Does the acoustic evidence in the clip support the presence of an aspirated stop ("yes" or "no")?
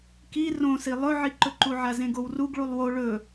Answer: no